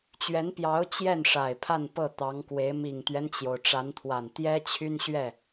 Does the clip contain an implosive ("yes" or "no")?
no